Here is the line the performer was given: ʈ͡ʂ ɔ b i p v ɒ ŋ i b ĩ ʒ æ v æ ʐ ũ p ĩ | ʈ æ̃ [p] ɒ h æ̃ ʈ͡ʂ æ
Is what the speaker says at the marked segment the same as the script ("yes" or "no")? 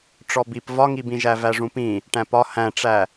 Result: yes